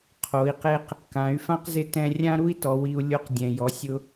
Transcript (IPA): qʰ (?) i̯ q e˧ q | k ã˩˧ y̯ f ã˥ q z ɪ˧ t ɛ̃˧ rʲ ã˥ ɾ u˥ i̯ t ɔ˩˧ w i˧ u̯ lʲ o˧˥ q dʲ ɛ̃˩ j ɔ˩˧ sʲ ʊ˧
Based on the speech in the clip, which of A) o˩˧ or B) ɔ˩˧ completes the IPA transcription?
A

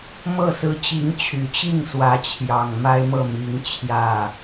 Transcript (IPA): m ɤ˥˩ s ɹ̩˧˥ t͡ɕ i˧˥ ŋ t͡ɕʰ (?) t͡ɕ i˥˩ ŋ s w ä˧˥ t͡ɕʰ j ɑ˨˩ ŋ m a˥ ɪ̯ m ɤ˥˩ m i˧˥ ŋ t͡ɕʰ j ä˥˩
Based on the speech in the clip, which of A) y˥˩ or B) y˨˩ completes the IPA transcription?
B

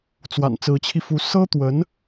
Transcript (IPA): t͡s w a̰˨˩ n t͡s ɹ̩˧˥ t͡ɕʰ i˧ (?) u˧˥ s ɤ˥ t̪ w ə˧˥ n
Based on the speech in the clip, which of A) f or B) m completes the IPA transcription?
A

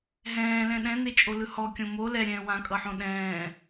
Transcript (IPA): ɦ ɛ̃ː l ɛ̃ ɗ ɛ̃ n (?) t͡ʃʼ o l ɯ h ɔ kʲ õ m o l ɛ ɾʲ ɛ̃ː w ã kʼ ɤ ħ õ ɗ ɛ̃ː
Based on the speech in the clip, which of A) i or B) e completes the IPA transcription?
B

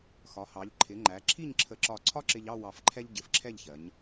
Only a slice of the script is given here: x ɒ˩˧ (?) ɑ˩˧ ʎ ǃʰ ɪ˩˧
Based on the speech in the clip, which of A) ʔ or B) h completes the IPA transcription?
B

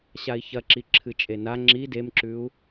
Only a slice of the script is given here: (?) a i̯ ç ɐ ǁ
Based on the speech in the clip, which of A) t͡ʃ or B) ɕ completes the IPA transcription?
B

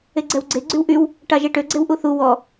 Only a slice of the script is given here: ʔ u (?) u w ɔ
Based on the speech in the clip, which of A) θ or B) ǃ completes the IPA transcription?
A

